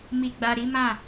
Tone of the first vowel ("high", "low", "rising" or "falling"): low